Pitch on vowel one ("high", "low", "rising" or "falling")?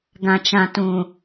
low